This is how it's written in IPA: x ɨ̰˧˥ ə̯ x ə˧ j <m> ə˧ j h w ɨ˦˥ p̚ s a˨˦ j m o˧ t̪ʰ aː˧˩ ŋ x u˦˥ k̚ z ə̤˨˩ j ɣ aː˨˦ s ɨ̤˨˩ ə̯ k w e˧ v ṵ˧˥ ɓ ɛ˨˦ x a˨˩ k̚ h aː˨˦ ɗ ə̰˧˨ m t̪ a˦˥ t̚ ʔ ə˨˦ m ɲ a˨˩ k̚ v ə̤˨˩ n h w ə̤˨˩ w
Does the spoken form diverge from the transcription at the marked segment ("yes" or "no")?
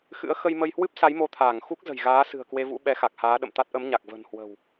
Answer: no